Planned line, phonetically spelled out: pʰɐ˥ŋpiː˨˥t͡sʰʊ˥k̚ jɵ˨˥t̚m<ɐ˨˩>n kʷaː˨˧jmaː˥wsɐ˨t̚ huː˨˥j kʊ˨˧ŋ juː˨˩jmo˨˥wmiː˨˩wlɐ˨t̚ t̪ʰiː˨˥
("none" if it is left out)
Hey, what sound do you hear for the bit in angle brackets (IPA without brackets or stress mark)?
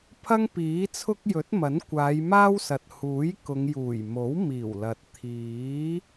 ɐ˨˥